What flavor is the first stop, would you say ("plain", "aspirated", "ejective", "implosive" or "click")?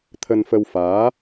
aspirated